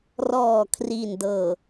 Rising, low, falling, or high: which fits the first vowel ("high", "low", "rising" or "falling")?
low